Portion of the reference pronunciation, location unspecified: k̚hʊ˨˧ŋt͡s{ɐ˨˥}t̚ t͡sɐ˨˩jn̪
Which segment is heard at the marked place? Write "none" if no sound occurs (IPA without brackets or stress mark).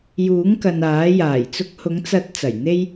ɐ˨˥